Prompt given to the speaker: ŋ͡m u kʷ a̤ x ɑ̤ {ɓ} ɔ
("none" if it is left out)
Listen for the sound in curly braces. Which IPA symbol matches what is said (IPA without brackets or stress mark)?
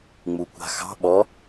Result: ɓ